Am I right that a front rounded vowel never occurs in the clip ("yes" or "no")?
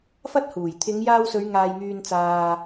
no